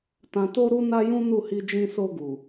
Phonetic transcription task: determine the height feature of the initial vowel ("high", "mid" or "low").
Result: low